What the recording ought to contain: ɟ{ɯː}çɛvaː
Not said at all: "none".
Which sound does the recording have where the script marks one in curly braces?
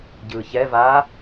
ɯː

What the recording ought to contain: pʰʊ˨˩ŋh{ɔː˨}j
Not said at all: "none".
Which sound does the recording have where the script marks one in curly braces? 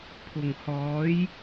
ɔː˨˥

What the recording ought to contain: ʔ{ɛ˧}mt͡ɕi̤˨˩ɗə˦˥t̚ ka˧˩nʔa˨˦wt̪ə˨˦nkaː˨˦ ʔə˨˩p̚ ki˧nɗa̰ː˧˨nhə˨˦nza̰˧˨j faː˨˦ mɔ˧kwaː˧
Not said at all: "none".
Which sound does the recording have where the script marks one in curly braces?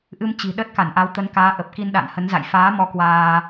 ɨ˧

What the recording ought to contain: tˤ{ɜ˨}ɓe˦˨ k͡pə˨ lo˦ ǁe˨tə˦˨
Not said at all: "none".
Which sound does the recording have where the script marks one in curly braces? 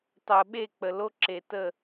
ɜ˨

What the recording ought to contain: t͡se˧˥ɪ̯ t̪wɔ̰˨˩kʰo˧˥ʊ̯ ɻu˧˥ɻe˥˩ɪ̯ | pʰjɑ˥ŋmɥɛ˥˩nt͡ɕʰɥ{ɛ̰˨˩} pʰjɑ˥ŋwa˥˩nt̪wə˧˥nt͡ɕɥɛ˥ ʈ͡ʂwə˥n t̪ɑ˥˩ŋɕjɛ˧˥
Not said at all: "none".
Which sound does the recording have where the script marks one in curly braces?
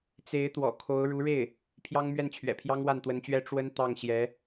ɛ̰˨˩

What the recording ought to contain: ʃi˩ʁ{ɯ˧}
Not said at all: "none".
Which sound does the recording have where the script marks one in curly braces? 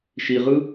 ɯ˧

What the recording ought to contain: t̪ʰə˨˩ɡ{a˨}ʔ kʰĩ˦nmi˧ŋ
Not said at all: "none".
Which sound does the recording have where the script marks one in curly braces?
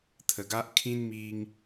a˦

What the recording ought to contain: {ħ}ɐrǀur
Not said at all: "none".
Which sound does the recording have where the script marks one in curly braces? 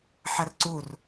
ħ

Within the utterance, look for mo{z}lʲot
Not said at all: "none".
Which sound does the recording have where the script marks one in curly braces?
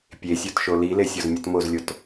z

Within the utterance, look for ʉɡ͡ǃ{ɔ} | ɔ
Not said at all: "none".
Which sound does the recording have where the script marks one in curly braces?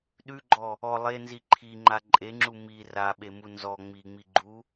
ɔ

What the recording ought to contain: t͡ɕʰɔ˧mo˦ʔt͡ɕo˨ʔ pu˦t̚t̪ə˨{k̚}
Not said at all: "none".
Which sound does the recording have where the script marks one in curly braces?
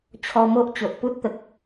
k̚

